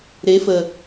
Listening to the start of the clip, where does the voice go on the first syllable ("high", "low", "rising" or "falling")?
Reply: rising